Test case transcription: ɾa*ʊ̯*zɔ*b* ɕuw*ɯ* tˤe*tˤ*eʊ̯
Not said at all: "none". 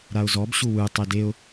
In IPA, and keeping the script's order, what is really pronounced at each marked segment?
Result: ʊ̯, b, ɯ, d

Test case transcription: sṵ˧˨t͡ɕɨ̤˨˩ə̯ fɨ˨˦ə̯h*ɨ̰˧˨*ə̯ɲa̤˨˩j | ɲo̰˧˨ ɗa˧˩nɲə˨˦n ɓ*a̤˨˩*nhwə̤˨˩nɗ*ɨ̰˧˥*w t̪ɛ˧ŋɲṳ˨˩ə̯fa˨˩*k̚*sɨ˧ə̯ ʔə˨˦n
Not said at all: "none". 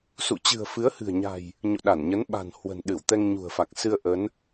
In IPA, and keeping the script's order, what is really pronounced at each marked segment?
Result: ɨ̤˨˩, a̤˨˩, ɨ˧˩, k̚

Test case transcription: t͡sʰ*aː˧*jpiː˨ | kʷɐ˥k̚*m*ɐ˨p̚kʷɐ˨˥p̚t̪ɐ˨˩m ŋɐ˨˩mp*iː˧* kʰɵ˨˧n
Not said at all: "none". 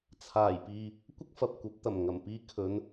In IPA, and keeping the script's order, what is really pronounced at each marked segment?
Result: aː˨˩, f, iː˧

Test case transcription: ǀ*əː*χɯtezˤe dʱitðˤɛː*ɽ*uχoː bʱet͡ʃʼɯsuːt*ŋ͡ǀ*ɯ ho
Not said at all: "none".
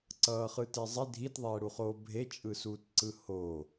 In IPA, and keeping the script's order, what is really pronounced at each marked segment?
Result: ʌː, ɽ, ǀ

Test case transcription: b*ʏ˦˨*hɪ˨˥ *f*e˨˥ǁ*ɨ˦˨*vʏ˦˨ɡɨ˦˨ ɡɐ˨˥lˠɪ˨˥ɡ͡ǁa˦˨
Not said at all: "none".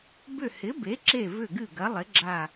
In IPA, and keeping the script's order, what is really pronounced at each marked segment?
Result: ʏ˦˨, b, e˦˨

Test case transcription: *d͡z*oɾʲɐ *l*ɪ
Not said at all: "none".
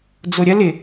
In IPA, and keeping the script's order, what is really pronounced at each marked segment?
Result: d͡z, l

